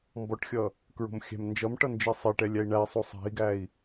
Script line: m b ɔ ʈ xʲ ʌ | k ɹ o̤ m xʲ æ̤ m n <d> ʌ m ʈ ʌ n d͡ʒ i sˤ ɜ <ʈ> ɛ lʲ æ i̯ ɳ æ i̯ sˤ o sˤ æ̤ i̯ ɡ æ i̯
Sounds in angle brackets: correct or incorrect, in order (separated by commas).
incorrect, correct